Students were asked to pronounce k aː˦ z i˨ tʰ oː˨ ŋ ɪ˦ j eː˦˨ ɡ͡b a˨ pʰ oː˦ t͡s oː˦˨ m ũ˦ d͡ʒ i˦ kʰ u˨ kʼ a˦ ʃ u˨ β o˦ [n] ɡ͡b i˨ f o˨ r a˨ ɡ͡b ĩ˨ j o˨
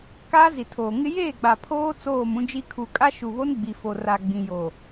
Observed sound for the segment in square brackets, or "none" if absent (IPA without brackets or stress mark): n